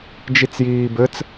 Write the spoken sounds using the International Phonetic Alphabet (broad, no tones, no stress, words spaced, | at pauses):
d͡ʒit͡sjiːbɘt͡s